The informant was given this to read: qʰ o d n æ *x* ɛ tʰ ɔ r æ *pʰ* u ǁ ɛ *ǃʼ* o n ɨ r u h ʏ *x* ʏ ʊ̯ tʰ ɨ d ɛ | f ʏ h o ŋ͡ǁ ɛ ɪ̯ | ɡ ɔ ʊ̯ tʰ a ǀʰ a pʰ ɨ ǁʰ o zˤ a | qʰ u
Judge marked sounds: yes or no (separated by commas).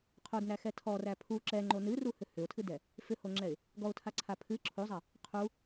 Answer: yes, yes, no, no